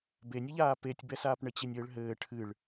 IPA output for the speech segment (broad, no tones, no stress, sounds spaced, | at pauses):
b e nʲ ɘ ʎ aː p e tʲ b ɛ s aː p ɳ ɘ t͡ɕ e nʲ ɘː ɭ ɦ ɘː ʈʰ ɨ ɭ